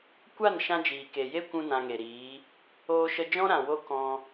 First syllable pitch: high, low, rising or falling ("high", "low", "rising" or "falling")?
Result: falling